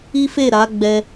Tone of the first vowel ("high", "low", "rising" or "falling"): high